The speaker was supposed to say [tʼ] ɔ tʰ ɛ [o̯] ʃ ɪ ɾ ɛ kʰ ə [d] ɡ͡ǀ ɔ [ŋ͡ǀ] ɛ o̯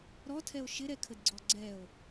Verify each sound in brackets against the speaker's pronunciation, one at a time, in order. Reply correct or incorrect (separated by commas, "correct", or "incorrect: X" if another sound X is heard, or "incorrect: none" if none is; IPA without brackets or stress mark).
incorrect: ɾ, correct, correct, incorrect: ɡ͡ǀ